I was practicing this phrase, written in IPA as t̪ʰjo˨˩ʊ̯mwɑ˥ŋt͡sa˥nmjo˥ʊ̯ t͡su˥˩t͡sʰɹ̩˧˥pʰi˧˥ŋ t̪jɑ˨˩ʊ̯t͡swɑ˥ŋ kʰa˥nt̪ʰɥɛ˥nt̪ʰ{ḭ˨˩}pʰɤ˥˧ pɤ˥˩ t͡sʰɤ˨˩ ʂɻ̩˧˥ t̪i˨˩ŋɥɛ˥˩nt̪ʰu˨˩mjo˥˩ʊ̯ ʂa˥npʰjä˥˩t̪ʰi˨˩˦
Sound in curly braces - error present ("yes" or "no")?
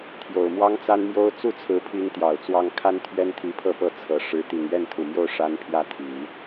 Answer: yes